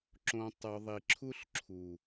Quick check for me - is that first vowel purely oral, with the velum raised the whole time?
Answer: no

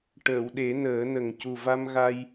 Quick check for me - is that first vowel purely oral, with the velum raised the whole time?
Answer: yes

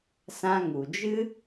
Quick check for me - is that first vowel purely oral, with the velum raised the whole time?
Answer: no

